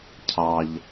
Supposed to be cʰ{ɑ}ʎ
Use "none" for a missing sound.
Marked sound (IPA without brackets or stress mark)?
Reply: ɑ